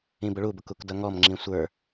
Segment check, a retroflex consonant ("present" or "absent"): present